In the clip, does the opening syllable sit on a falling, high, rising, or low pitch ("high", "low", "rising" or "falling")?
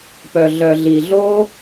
low